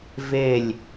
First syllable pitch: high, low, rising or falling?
falling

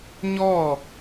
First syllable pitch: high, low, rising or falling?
falling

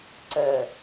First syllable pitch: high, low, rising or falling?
low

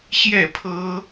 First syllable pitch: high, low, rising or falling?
falling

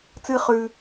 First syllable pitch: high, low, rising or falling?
high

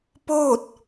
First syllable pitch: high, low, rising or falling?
falling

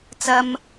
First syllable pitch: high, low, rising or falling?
high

